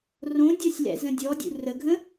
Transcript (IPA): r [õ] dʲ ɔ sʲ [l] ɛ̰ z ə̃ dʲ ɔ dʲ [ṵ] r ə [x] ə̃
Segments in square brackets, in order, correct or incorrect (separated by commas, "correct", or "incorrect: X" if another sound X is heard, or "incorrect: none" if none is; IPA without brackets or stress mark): correct, correct, correct, incorrect: ɡʱ